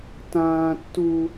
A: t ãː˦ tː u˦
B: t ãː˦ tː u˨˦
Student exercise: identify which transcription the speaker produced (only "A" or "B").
A